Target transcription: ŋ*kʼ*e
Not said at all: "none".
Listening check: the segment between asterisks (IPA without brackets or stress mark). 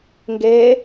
ɡ